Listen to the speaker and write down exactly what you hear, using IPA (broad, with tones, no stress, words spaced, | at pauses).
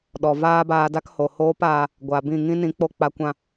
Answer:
ɗɔ˨vaː˦baː˧da˦k ho˨hoː˦paː˧ | ɡʷa˨bĩ˦˨ ŋĩ˦ nĩ˨˦k͡po˦k͡pa˧kʷã˦˨